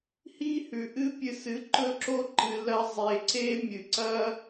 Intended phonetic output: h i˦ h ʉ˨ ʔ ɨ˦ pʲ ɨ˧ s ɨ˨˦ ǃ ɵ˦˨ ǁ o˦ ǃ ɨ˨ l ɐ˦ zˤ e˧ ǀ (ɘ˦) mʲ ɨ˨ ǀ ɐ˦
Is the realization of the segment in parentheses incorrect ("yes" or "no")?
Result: yes